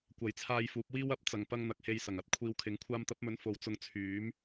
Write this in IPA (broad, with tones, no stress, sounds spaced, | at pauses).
kʷ ɐ˨˥ j t͡sʰ aː˧ j f uː˨˥ p̚ w iː˥ w ɐ˨˥ p̚ t͡s ɐ˨ ŋ p ɐ˧ ŋ n̪ ɐ˨ k̚ h e˧ j s ɐ˨˩ ŋ ɐ˧ t̚ kʷʰ iː˧ w kʰ ɪ˨˥ ŋ kʷʰ aː˧ m t̪ ɐ˨˥ p̚ m ɵ˨˥ n f o˨ w t͡s ʊ˧ ŋ t͡sʰ yː˨˥ m